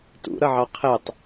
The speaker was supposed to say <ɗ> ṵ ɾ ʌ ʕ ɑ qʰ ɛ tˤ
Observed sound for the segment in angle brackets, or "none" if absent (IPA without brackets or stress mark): t